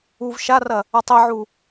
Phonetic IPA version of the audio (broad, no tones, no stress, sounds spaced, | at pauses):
u v ʃ a r ɐ | ɐ tˤ i ʕ u